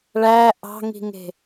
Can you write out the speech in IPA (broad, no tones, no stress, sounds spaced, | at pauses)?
ɭ æ ʔ ɑ̤ ŋ i̤ ŋ e̤